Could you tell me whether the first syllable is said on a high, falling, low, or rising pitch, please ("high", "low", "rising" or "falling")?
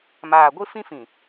low